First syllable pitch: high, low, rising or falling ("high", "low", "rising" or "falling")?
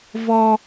high